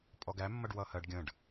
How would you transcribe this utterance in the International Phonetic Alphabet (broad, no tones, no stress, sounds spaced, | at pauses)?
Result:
pʼ ɔ ɡ æ mː ʌ ɖ w ʌ h ɜ ɖ ɡʲ ə̃ ɖ